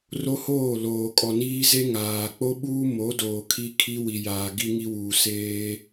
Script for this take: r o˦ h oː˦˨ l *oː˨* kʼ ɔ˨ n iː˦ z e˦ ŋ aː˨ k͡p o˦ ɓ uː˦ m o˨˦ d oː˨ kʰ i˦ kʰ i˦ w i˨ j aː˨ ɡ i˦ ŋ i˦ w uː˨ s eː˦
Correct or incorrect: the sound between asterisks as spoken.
correct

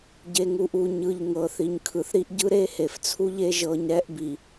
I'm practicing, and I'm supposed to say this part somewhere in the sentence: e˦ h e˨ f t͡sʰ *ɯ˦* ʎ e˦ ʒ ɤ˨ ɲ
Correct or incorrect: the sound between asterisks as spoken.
incorrect: u˦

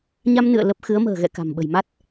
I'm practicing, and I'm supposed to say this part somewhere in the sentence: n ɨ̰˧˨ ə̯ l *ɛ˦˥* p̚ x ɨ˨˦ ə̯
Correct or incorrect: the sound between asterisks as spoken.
incorrect: ə˦˥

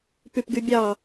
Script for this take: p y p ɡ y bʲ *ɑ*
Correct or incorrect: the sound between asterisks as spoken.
correct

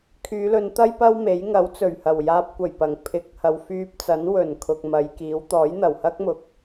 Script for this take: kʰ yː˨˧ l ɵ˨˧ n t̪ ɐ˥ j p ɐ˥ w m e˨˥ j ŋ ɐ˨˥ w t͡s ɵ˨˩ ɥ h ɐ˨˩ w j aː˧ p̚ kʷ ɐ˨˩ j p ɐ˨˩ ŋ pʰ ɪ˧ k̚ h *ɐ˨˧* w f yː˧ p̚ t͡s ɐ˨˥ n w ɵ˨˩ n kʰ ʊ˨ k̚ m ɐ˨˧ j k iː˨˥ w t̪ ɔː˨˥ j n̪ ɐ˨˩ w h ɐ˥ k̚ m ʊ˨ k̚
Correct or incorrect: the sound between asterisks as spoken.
incorrect: ɐ˨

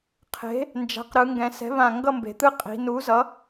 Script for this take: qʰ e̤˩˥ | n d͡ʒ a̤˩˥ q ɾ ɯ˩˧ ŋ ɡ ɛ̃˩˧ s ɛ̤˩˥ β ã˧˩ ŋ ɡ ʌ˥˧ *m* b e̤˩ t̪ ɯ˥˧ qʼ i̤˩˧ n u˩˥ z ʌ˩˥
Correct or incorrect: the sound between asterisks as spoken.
correct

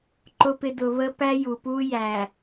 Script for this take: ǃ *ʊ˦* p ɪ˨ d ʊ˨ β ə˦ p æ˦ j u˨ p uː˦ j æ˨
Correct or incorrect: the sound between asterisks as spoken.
incorrect: ʊ˨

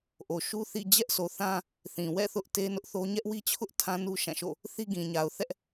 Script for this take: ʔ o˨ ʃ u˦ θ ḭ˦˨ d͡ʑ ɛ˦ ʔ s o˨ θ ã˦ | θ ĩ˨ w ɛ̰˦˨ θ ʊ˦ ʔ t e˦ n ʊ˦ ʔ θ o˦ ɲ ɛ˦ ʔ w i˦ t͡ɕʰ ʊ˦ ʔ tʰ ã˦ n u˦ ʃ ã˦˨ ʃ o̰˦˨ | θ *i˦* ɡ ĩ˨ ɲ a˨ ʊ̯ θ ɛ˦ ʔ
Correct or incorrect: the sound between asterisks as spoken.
correct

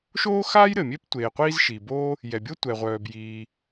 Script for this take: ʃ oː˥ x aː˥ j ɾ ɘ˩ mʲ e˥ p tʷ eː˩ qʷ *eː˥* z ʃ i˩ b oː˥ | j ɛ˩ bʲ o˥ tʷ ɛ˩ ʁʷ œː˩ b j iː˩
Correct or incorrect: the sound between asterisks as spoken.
incorrect: iː˥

